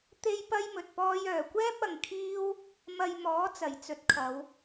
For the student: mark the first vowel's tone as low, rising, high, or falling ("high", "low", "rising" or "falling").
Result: high